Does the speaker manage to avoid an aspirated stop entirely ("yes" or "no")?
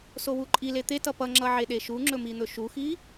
yes